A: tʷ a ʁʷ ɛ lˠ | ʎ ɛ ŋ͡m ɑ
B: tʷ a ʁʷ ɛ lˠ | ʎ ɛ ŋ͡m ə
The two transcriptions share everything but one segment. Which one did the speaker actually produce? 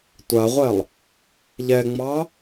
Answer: A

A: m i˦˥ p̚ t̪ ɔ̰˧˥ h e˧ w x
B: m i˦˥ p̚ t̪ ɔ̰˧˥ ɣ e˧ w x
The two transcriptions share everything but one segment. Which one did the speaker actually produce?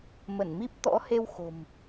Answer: A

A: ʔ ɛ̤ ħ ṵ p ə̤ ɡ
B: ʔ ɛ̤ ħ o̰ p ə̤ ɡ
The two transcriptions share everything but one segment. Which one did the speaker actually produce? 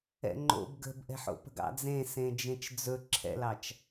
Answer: B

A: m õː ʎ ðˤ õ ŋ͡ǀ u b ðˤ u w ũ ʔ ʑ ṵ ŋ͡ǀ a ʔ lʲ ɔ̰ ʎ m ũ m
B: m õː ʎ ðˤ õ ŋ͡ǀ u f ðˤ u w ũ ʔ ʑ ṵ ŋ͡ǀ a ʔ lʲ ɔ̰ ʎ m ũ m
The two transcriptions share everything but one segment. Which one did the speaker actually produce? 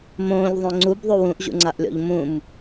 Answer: A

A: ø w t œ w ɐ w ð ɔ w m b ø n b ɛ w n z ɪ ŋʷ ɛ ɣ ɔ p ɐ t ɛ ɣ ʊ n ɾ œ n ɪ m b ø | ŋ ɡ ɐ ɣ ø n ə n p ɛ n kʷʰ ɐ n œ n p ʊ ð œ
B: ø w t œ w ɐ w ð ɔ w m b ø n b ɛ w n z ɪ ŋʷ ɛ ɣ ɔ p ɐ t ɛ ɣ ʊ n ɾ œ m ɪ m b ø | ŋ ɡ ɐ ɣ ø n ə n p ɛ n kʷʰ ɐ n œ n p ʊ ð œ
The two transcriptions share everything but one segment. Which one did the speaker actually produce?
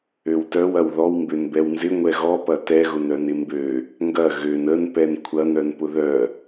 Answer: A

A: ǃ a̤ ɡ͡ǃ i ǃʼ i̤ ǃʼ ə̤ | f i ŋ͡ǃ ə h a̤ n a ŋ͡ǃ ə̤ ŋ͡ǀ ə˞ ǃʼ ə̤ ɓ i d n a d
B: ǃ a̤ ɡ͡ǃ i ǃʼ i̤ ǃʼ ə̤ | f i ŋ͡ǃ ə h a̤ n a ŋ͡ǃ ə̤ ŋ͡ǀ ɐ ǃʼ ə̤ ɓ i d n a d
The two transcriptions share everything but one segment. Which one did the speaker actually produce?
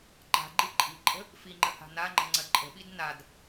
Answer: B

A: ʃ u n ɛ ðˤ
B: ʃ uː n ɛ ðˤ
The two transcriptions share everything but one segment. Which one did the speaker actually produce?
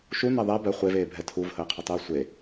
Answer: A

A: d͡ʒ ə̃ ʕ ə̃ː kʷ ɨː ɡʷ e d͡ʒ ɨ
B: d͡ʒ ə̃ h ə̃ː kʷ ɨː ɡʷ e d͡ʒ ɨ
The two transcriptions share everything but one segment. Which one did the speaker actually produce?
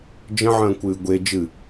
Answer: A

